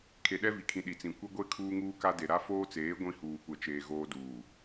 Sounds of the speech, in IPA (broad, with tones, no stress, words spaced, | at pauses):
kʰe˨ɗɛ˦vi˨kʰĩ˨ ɗi˨t͡sĩ˨ kʷɪ˦ɡʷe˦ kʰuː˦ŋuː˦ka˦de˨ ɾa˦foː˦t͡seː˨˦ ɡʷĩ˦huː˨kʷɛ˨t͡ʃeː˨ ɣoː˦duː˨